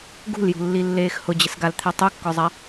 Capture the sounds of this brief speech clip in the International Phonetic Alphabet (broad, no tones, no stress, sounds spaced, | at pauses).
ɡ ṳ l j ṳ lː i lː eː x h ʊ d͡ʑ ɪ s ɡ a l t̪ʰ e tˤ u kː ɔ zˤ a